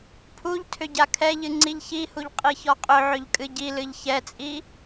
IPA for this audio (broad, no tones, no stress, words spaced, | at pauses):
pʰuʎtʰʏ ɟakʰɛʎɨ ŋ͡ǀiʎçihuʎ qʼiçɔqʼʏʕʏʎ kʼɨɟilɨʎ çɛt͡sʼi